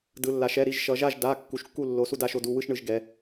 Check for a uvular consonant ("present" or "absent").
absent